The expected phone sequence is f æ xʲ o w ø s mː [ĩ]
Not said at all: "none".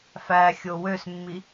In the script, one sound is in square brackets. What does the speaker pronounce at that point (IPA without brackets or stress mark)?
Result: i